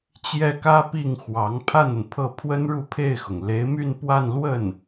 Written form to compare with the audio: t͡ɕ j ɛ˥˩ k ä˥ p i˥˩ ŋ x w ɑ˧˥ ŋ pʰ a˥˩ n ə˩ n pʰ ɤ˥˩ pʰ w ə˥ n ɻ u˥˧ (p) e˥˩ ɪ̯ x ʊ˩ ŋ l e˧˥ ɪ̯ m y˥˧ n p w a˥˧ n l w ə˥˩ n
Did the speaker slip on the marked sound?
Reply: yes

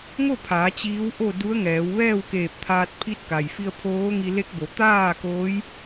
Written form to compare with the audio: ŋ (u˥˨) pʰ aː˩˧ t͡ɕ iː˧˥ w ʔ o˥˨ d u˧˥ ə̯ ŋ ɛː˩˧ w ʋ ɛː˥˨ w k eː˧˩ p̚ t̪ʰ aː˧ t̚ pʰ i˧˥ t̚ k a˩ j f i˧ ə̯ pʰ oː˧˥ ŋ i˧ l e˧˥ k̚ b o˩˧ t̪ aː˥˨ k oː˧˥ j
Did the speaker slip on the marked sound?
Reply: yes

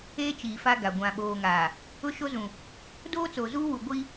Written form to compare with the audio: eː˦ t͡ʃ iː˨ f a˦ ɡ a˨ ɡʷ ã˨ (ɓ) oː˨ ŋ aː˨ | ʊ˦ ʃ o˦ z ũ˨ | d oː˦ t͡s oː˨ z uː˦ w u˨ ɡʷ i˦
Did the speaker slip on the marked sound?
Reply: no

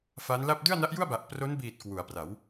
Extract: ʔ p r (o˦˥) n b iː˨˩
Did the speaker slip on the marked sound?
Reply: no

